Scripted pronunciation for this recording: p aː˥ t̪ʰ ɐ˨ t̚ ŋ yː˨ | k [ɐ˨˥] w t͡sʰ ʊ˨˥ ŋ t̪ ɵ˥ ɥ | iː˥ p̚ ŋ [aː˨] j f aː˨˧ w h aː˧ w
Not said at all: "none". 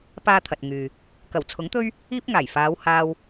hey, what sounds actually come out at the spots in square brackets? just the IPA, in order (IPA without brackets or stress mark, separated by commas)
ɐ˨˩, aː˨˩